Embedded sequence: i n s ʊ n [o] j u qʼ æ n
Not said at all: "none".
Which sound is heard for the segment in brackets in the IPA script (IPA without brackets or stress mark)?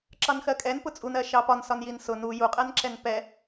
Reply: u